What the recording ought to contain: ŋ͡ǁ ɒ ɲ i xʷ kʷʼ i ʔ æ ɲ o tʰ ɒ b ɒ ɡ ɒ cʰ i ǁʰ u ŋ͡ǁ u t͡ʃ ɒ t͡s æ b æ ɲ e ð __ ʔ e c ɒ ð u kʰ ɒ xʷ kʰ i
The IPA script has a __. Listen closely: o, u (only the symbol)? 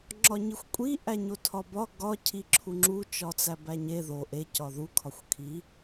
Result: o